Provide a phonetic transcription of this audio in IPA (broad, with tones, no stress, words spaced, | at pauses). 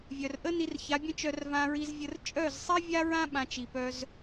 vʲœ˨rʔə˦ ni˧rça˨˦bʲə̃˦t͡ʃœ˧r vã˧ɹi˧zvʲə˧r t͡ʃʼœ˦˨zsˤi˦vʲa˦ɹã˦ ɓã˧t͡ʃi˨pœ˧z